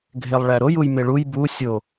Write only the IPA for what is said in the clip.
ɡʱ e lˠ ɭ æ ɾ o j u j m e ɭ u j b u sʲ o

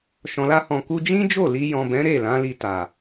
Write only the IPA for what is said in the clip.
ʃ ɔ̃˨ l a˧ h ɔ̃˨ k u˧ d͡ʒ ĩ˦ d͡ʒ o˦˨ l i˧ j ɔ̃˨ b ɛ̃˨˦ ɾ e˦˨ l ã˨˦ l i˧ t a˨

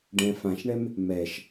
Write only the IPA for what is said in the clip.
ɖ ɛ̃ f ã ʃ ɳ ɛ m | m ɛ ʃ

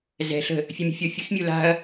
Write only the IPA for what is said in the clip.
z ɛ̤ ɬ ə̤ | fʲ ʉ mʲ o̤ fʲ o fʲ u ç mʲ u l a̤ ɐ̯

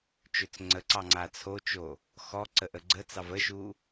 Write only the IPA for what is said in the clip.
t͡ʃ ø t͡s ŋ͡ǀ ə ǀ ɑ ŋ͡ǀ a t͡sʰ o t͡ʃ o | x ɔ ǀ ə ʔ ə ɡ͡ǀ ə t͡s ɑ v ə ʃ u

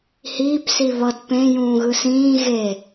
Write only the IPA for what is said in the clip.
h iː p s i β ʌ d p ẽ j ũː ɣ ɯ s ĩː ɣ e

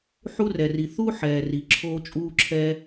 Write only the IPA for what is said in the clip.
ħ u˦ r ɛ˩ r i˩ θ u˦ ħ ɛː˩ r i˩ ǁʰ oː˦ t͡ʃʼ uː˦ ǁʰ ɛ˦

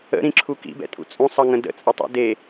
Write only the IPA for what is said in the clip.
ə̰ ɾ ĩ ǁʰ u k ḭ b ɛ̰ tʼ ṵ t͡sʼ ũ sˤ ʌ ŋ ə̃ d ə̰ t͡sʼ ə tˤ ṵ d e

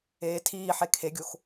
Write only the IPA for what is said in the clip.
eː tʰ iː ħ e kʰ e ɡʲ o x

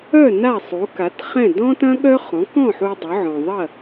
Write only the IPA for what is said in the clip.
œ˥˩ n a˥˩ sˤ u˩˥ k a˩˥ t χ ɛ̃˥˩ d ɔ̃˥ t ɐ̃˥ ɠ œ˥ χ ɔ̃˩˥ k ɔ̃˥˩ ħ u˧ dˤ ʏ˩˥ ʕ ɔ̃˩ ðˤ ɐ˥˩

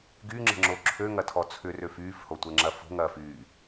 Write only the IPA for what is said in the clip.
ɡ y ŋ͡ǁ ə̤ ŋ͡ǁ o ǁʰ ø ŋ ɐ tʰ ɔ t͡sʰ ʏ r ø f yː f h o tʷ ɛ ŋ͡ǁ ɐ f o̤ ŋ ɐː f yː

